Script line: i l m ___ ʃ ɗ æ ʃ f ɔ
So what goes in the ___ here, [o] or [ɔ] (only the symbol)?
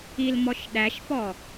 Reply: ɔ